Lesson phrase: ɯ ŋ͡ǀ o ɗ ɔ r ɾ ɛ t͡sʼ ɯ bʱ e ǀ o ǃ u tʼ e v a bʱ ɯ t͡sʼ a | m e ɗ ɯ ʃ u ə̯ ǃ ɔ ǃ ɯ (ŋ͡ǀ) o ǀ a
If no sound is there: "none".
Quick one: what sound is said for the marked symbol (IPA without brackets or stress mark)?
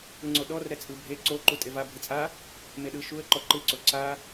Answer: ǀ